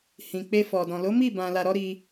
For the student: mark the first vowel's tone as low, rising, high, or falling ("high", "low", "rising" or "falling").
low